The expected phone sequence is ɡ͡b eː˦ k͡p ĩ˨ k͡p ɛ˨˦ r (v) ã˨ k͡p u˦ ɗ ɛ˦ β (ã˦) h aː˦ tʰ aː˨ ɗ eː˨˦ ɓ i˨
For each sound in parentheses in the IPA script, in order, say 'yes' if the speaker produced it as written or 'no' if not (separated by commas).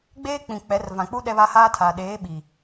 yes, no